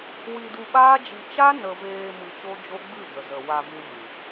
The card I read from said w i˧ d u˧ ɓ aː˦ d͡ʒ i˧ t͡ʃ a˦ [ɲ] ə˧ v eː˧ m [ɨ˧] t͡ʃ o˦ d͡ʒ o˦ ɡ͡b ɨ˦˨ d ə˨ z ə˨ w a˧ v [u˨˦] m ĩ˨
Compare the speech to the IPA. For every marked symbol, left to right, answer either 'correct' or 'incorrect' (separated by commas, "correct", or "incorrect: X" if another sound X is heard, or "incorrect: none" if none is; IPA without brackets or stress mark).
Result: incorrect: n, correct, incorrect: u˧